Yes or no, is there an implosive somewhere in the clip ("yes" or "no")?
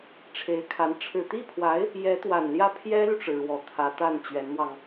no